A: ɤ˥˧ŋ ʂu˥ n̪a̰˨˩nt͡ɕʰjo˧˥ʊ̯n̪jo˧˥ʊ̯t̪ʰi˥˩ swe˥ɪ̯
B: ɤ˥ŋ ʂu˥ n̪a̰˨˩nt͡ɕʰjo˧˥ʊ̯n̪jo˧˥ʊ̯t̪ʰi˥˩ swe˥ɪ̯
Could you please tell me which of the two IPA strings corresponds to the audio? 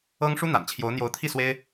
B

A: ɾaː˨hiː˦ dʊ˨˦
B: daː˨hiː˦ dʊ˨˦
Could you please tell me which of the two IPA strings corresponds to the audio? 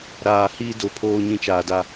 A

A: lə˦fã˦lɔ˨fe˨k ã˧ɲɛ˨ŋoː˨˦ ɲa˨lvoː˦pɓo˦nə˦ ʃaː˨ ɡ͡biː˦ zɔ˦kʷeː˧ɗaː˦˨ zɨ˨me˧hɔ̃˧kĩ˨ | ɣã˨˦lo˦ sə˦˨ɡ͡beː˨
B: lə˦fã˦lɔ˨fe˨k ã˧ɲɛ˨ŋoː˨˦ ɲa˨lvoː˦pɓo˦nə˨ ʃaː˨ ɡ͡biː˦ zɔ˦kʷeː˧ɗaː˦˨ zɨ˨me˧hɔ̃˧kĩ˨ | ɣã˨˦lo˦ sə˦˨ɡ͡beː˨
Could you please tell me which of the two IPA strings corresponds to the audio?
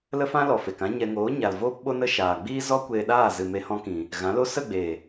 A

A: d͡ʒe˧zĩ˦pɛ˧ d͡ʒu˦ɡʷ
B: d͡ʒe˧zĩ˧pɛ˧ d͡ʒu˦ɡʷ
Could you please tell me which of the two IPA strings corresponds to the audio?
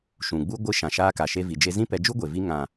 A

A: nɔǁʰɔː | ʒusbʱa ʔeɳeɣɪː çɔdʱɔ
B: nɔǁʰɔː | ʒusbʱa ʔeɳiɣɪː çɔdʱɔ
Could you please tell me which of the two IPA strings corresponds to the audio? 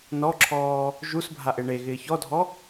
A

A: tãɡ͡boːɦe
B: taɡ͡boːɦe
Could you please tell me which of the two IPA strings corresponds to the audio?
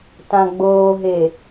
A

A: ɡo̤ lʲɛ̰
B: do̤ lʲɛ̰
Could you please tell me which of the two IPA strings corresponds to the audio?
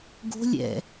A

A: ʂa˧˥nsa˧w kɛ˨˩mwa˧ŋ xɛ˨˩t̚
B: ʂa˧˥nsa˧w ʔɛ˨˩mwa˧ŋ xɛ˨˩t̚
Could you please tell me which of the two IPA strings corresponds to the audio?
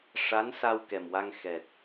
A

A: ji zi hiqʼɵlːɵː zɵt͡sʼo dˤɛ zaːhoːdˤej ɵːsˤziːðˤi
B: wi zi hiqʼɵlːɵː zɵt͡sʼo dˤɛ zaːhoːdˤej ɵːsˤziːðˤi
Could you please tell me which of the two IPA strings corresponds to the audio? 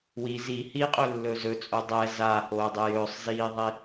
B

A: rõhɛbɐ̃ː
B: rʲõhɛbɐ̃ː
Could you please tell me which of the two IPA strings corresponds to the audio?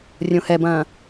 B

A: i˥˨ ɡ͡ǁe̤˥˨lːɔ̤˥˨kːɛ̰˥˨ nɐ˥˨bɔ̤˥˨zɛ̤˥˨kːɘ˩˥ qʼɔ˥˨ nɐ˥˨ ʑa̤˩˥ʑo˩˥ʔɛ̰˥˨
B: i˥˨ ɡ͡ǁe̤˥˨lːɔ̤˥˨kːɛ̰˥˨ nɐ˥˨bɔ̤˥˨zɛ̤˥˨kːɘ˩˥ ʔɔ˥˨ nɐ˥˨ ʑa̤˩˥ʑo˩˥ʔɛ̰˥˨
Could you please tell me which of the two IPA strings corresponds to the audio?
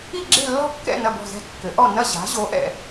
B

